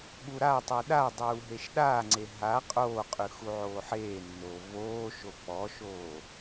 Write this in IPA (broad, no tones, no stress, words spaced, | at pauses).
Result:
ɠuɾatˤʉ ɗadˤuː ɦeʃɗaːŋ͡ǀe ɦa qʼoːqʼʉ xuʕoːħeːnːoː voːʃo k͡pɔʃoː